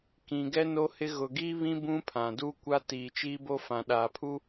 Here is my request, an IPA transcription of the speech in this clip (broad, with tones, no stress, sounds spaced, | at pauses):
k ĩ˨ ɡ ɛ˦ n o˦ h ɪ˦ ɣ ʊ˨ ɡ i˦ β ĩ˦ b ũ˦ pʰ ã˨ d u˦ kʷ a˦ t iː˨ t͡ʃ iː˦ b o˦ f ã˨ ɗ aː˨ pʰ u˦